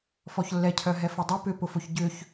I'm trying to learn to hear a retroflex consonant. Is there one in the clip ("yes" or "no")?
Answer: no